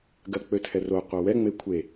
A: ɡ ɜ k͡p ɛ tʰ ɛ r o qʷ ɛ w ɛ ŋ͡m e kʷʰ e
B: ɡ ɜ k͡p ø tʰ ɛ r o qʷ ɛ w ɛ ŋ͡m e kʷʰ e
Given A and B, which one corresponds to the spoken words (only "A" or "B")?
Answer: B